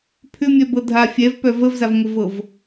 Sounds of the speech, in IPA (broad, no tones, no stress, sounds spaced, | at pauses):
pʰ ʏ mʲ œ b ɤ dʱ a fʲ ɛ v p œ v ə v z a v ŋʷ ə v ɤ v